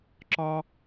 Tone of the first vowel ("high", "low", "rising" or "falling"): high